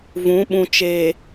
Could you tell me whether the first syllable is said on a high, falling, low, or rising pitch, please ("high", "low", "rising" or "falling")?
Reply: rising